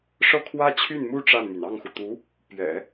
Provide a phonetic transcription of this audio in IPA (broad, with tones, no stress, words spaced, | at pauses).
ʂɤ˥˩kʰwä˥t͡ɕʰy˥˩nmu˥ ʈ͡ʂa˥˩nmy˩n ɑ˥˩ŋxu˩ t̪u˧˥ | pɥɛ̰˨˩˦